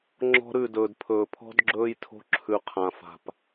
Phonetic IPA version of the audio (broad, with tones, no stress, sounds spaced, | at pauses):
ŋ͡ǁ ɔ̤˧ ɾ ʉ˦˨ d ɵː˨ d pʰ ɵː˨ pʰ ɔ̤˦ d ɡ͡ǁ ɵː˧ j tʰ o̤˧ ǁʰ ʉ˨ qʰ ã˨ f a̤˨ p